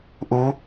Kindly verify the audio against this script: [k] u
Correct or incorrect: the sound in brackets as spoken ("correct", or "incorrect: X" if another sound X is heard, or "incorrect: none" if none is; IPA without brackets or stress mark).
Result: incorrect: ʔ